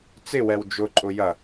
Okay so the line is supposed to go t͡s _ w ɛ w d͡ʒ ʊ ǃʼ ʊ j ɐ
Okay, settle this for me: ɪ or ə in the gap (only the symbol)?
ɪ